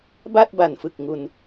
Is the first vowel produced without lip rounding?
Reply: yes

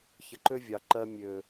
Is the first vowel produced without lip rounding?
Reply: yes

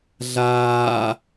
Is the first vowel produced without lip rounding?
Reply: yes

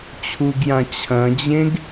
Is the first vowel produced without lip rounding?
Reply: no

